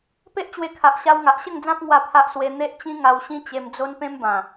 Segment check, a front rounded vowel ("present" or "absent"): absent